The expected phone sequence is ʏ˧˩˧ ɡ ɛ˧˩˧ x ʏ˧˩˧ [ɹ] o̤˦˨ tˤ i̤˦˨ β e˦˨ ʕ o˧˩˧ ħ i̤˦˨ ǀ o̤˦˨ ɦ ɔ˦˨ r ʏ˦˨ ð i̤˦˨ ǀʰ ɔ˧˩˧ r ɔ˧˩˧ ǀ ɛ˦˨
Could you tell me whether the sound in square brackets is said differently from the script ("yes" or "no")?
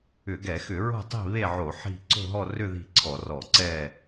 no